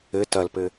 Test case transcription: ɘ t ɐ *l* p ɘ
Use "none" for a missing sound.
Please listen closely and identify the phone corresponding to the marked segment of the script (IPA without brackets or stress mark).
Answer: l